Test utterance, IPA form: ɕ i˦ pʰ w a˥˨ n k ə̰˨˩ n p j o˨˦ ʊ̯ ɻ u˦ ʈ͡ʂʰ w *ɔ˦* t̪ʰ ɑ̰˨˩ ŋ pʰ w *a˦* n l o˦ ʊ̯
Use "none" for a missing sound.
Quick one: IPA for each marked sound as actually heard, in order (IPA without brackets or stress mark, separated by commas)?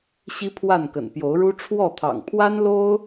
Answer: ɔ˥˨, a˦